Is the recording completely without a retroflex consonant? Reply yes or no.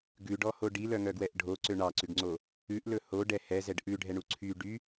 no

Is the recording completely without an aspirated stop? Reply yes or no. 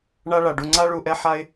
yes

